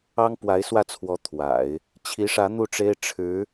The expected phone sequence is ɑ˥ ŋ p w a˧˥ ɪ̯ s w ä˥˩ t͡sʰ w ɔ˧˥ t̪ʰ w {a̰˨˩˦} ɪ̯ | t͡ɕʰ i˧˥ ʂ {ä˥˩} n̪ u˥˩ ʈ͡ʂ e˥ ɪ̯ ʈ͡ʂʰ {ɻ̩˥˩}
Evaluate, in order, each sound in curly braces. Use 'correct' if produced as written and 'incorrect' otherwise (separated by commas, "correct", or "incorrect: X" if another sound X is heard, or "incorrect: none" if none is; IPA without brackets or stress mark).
correct, incorrect: ä˧˥, incorrect: ɻ̩˧˥